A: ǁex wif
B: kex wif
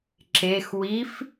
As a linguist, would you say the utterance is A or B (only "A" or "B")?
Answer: A